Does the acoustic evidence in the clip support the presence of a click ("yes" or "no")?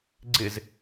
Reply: yes